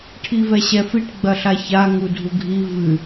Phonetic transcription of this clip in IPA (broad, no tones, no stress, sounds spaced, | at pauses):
ʈʰ i v ɛ ɕ ɛ f i ʈ ɡ͡b ɐ ɬ a ç a ŋ u dʱ u ɡʱ i v ɨ